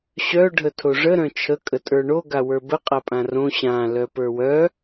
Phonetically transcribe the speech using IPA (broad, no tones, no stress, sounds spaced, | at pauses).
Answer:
ɕ œ ɖʱ ə tʰ o ʐ ə ɾ œ̃ t͡ʃʰ ə kʼ ə tʼ ə˞ ɳ o ɡ a w ə˞ b ə qʼ a pʼ ã r õ ɕ ã l œ p ə˞ w œ